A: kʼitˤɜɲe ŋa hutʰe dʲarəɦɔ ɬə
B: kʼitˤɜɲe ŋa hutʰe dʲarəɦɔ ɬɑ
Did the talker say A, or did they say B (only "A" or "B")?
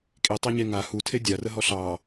B